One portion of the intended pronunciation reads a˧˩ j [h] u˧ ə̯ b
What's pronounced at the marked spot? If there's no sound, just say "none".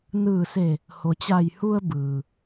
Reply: h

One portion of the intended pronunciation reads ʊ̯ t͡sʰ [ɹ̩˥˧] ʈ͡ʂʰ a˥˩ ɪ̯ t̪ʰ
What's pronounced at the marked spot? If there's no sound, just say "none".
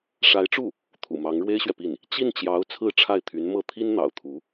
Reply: ɹ̩˥˧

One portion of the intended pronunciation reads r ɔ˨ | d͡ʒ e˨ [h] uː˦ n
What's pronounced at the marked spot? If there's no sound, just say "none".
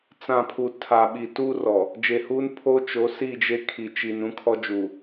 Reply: h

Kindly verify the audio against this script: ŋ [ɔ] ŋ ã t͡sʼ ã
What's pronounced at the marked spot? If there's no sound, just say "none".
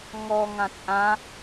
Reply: ɔ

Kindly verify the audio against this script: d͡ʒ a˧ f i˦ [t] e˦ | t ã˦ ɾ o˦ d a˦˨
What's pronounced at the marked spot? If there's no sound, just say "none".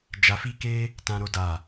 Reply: k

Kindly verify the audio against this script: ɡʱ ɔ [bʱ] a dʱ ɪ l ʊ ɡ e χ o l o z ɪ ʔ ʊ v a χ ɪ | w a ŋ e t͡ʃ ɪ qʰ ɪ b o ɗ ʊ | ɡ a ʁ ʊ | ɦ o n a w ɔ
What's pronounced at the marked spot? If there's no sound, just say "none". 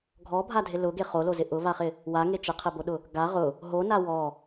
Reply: bʱ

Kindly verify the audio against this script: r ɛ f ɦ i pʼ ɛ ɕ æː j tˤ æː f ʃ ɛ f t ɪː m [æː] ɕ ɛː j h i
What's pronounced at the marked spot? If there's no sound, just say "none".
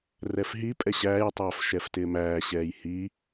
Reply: æː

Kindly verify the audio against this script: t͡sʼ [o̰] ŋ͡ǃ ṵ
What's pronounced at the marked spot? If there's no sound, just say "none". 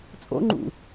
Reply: o̰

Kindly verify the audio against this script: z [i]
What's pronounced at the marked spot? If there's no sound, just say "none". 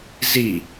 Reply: i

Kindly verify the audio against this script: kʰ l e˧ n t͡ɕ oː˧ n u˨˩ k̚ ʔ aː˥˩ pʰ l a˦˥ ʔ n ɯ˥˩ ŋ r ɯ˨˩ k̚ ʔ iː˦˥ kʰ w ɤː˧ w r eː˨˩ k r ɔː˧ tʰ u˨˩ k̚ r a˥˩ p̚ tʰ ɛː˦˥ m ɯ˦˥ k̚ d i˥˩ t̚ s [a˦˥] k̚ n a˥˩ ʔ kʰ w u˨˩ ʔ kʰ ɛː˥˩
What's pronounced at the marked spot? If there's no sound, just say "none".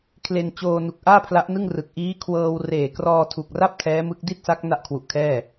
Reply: a˦˥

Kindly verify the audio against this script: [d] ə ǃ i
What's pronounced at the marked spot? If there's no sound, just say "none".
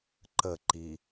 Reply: ǃ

